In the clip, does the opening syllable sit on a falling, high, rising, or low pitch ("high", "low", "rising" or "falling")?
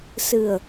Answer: low